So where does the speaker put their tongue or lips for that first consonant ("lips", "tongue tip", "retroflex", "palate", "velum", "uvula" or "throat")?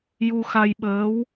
palate